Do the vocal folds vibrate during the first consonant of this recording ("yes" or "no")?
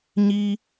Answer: yes